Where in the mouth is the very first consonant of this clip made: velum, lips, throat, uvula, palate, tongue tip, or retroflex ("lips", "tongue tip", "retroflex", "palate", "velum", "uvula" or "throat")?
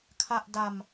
velum